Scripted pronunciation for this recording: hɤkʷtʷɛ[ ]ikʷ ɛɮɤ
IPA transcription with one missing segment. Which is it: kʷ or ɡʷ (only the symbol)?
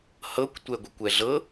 ɡʷ